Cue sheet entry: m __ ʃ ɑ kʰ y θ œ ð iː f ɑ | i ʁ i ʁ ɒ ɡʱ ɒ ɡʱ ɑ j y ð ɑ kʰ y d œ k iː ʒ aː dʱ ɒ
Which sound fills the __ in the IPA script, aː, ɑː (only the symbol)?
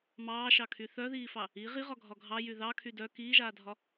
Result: ɑː